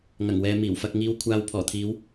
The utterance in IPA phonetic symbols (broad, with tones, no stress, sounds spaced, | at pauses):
ŋ ɐ˨˩ ŋ w ɛː˨ m iː˨˩ w f ɐ˧ k̚ ŋ iː˧ w kʷʰ aː˨ w pʰ ɔː˨˩ t̪ʰ iː˨˥ w